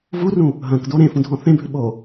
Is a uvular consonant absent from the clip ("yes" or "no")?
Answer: yes